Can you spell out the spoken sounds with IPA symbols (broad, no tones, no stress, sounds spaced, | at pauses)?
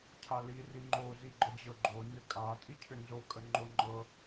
cʰ a l i r i ŋ͡ǃ o z i ɡ͡ǃ ə d͡ʑ ɤ ɡ͡ǃ o n ʏ kʼ a tʼ i cʰ ʏ n z o kʼ ə ŋ͡ǃ o ŋ͡ǃ ɤ